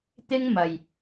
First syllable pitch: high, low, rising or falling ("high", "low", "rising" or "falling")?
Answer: high